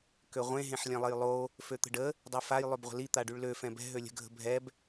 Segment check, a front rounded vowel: present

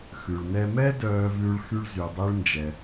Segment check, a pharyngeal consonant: absent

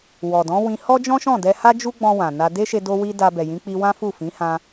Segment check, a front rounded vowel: absent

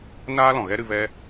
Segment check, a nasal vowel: present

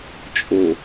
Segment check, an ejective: present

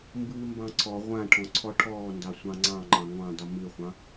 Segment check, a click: present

